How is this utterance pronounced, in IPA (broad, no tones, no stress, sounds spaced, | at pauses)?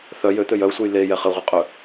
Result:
θ œ j ø t̪ ø j œ u̯ sʷ œ j l e j ɛ χ ɘ ʁʷ ɘ qʼ œ